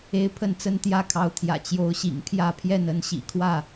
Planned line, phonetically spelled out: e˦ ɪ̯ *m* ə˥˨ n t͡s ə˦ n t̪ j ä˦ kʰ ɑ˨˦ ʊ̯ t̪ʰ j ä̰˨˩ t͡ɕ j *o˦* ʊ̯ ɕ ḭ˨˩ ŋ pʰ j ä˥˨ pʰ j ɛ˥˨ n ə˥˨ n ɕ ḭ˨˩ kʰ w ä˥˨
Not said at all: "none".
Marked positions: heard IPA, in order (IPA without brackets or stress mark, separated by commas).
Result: pʰ, o˨˦